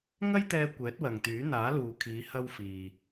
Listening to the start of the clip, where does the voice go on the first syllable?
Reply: high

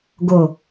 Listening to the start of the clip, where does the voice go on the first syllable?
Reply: low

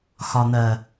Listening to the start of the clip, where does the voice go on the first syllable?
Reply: low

